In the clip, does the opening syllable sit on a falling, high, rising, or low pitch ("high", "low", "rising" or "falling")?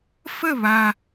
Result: falling